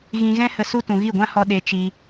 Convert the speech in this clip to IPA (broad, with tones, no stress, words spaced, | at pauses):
ɣĩ˧ɣɛ̃˦ hə˧su˦ tũ˧ ɣi˦˨ɡʷã˦hɔ˧ ɗe˧ t͡ʃi˧